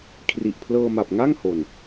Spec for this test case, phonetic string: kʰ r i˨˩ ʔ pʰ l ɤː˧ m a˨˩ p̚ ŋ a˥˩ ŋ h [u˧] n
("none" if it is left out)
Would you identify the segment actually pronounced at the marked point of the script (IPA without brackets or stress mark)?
o˧